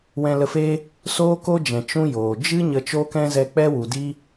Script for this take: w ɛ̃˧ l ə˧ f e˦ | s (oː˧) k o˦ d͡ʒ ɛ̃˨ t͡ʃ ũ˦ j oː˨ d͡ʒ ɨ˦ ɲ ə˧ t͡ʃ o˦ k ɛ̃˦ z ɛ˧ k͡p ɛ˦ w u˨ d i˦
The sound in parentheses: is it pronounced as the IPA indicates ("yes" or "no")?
no